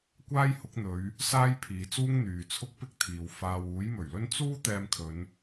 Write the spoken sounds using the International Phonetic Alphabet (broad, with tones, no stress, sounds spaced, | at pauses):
kʷ aː˥ j h ʊ˨˥ k̚ n̪ ɵ˨˧ ɥ | s aː˥ j pʰ iː˨˧ t͡s uː˥ ŋ n̪ yː˨ t͡sʰ ʊ˥ k̚ p ɪ˥ k̚ t̪ʰ iː˨ w f aː˨ w uː˨˥ j m ɵ˨˩ ɥ l ɵ˥ n t͡s uː˥ t̪ ɛː˧ m kʰ ɵ˨˧ n